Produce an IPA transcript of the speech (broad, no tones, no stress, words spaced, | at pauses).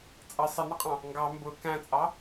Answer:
t͡sʼʌ sˤɪnʌqʼɑ̃ | ŋɡɑ mbʊ kæ̃t͡sʼɑ